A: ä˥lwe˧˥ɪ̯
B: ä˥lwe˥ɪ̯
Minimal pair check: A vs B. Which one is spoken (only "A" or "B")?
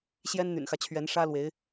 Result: A